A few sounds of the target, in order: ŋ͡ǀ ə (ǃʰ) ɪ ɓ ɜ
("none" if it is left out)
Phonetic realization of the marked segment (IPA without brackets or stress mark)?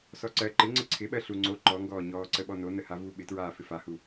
ǀʰ